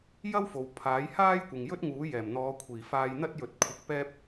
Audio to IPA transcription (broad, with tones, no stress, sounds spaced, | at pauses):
j ɐ˥ w f o˨ w pʰ aː˨˥ j h aː˥ j kʷ ɪ˨ ŋ j ɵ˥ t̚ ŋ uː˨˥ j ɛː˨˩ m n̪ ɔː˨˧ kʷʰ iː˨˩ f aː˧ j n̪ ɐ˥ t̚ j ɵ˨˥ t̚ kʷʰ ɐ˨ k̚ p ɛː˧ p̚